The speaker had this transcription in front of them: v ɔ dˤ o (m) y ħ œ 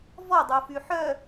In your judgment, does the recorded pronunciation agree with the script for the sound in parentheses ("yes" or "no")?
no